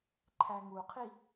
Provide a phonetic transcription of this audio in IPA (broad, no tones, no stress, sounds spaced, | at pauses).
ǃʰ æ ŋ u qʰ i